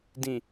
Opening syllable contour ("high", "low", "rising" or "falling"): low